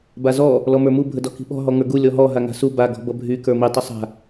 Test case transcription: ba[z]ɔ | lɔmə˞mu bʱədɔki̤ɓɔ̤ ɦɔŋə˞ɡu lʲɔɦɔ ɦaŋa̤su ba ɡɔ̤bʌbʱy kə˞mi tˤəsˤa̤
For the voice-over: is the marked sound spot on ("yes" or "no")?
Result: yes